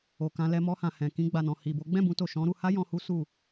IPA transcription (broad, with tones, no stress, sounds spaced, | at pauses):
o˨ k ã˧ l ɛ˧ m ɔ˧ h ã˨ h ɛ̃˨ k ĩ˧ ɡ͡b a˨ n ɔ̃˨ h i˨ b o˨˦ ɡ͡b ɛ̃˦˨ b ũ˧ t o˨ ʃ ɔ̃˨˦ ɾ u˧ h a˦ j ɔ̃˧ h u˦ s u˦˨